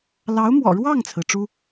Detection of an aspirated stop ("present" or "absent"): present